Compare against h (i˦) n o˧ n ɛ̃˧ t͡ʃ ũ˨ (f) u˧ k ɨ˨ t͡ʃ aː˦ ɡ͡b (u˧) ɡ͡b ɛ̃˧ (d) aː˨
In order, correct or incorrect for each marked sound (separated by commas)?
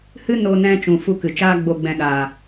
incorrect, correct, incorrect, incorrect